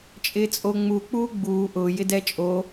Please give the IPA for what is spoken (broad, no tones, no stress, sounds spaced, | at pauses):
t͡ʃʼ ɪː t͡sʼ o ŋ͡m u k͡p uː ɡ͡b uː ʔ ʊː j ɪ d ɛ t͡ʃʼ o